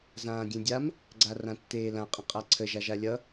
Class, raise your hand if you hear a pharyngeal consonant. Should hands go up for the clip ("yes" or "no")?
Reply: no